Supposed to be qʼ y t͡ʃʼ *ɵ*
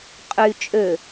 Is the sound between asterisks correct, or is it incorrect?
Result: incorrect